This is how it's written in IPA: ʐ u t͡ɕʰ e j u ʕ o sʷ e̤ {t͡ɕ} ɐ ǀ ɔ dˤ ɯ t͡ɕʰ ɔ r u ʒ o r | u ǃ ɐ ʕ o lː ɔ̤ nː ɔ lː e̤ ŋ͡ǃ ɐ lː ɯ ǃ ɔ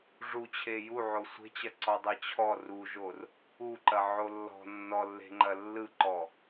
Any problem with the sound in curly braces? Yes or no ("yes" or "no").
no